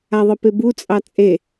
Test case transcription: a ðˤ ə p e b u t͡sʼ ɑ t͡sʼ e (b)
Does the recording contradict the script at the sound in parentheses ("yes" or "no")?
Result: yes